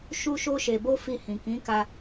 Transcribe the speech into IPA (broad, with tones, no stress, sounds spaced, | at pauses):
ʃ u˧ ʃ o˧ ʃ e˨ b o˧ f i˧ h ĩ˨ k ĩ˨˦ k a˧